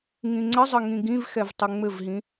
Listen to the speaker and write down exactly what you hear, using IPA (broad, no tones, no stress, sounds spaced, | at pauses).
ŋ ĩ ŋ͡ǀ ə zˤ ə ŋ ĩ ɡ ĩ v x ɛ v tˤ ʉ ŋ͡m ɘ v ɦ ĩ